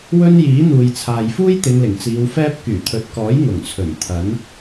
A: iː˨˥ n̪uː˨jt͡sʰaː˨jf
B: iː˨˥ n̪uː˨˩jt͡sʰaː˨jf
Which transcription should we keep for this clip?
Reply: A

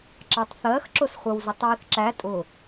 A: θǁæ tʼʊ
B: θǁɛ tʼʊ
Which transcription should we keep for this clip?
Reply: A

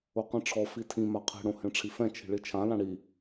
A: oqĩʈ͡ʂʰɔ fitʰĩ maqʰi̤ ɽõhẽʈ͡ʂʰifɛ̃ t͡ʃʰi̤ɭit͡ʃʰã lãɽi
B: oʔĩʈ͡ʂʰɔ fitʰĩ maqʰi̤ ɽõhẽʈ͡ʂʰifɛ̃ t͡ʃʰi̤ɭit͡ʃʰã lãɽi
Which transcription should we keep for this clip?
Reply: A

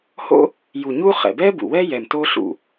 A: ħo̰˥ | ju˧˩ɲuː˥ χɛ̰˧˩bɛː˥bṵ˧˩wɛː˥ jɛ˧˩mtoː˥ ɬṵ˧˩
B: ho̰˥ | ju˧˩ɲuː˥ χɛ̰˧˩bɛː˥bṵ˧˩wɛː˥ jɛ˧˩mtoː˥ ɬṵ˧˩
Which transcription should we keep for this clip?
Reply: B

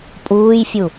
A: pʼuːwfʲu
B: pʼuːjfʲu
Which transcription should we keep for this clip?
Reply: B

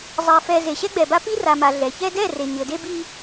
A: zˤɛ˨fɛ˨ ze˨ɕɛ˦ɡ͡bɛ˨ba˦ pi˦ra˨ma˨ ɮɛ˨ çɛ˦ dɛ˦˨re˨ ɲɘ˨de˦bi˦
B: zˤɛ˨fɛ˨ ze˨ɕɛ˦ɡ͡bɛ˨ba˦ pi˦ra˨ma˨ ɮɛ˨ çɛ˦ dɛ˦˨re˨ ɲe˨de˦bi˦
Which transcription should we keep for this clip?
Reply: A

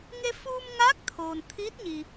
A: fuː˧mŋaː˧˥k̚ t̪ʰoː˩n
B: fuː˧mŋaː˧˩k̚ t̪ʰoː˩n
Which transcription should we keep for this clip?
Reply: A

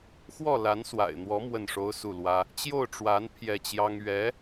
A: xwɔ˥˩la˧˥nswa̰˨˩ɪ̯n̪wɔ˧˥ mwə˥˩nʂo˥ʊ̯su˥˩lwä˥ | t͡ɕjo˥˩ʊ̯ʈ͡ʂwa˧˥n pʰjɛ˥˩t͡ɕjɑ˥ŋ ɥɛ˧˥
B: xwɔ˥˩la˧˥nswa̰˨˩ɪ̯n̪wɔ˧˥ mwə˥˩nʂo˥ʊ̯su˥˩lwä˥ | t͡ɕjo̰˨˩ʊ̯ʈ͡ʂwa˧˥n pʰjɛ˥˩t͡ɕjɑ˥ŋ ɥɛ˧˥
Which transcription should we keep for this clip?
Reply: A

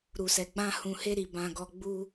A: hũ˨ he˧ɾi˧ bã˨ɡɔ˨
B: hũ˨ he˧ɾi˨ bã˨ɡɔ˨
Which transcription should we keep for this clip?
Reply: B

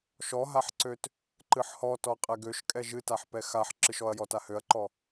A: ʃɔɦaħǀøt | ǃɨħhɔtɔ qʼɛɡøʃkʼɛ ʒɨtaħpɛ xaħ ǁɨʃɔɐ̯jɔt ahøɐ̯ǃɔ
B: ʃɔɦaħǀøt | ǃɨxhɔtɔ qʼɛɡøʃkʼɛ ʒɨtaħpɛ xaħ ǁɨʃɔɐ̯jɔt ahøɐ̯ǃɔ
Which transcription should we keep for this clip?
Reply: A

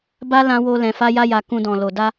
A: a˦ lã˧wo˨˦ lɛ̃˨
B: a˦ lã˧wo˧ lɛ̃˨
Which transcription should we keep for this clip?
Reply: B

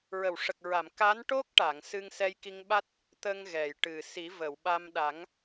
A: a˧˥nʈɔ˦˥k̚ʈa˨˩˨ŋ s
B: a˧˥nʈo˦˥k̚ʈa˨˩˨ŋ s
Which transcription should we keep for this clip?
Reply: B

